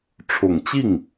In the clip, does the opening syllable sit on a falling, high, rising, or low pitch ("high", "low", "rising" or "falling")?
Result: low